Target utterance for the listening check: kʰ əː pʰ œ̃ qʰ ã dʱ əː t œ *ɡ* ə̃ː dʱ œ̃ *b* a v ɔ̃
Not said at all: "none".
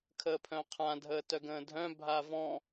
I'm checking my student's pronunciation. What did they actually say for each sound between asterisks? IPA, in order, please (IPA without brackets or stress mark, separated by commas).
ɡ, bʱ